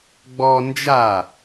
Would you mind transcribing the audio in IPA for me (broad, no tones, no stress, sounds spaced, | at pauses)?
ɡ͡b ɔ n d͡ʒ a